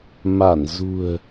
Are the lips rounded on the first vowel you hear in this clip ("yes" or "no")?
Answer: no